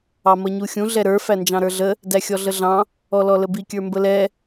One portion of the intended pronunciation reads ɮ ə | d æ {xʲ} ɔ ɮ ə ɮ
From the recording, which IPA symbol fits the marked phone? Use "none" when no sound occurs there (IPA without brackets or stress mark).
xʲ